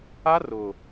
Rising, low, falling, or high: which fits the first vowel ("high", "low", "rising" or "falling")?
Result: high